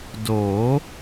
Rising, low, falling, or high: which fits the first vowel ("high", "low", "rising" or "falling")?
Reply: rising